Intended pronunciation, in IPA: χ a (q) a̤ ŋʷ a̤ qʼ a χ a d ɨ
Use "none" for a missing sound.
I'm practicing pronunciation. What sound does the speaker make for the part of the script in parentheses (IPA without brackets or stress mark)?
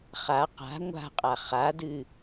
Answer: q